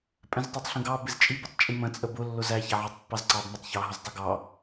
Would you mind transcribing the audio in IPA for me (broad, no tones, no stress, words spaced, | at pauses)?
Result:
pʼɛ̃ztˤə˞tˤɬə̃ɡɑ bɪzt͡ʃʼi bɪtˤt͡ʃʼimə̃ t͡sʼəbʊ lːʊzæ çæʕɑtˤpːɑzǀɑb mətˤ çɑ ɦʊztˤʊɡɑ